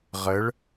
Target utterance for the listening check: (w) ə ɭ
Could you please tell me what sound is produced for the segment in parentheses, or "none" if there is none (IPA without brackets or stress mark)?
ʁ